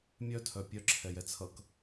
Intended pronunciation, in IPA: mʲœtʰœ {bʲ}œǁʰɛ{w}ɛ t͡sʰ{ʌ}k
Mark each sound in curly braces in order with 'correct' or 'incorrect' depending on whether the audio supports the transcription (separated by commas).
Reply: incorrect, incorrect, correct